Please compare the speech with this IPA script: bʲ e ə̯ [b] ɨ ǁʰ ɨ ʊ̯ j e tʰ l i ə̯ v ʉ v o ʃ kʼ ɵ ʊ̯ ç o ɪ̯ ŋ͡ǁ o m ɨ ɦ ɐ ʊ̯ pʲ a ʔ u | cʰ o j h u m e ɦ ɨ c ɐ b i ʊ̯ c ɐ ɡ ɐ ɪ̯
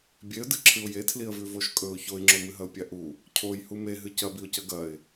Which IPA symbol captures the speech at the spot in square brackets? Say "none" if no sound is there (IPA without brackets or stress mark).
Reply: d